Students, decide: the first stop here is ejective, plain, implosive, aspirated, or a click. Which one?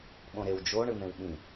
implosive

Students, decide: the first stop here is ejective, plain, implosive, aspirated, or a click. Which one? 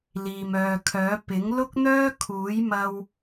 aspirated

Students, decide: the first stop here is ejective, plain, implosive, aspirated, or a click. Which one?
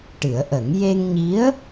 plain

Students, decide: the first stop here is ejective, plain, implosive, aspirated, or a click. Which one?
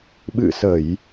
implosive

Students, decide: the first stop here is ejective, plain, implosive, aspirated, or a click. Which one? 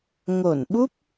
implosive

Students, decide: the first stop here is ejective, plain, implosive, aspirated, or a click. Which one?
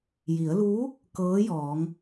plain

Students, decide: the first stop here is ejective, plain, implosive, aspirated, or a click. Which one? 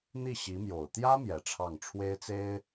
plain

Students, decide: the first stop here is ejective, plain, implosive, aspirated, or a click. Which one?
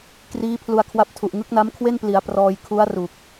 plain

